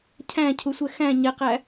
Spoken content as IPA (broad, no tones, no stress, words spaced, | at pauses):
cʰæ̃cʰusʷɛ xæ̃ ɲɛqæ